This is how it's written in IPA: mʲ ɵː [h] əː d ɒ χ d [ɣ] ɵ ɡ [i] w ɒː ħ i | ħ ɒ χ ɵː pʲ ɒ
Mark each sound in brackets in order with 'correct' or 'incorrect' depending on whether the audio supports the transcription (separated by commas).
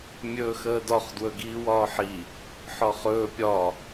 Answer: incorrect, incorrect, incorrect